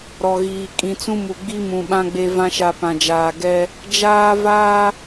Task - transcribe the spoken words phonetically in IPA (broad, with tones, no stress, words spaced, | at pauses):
ɾɔ˨ɣiː˨ kʼĩ˨t͡sũ˦ mu˨ɡ͡bi˦mũ˨ɓã˦ ɡ͡be˦vã˦ʃa˦˨ pã˨d͡ʒaː˨ ɡɛ˦ | d͡ʒaː˦vaː˦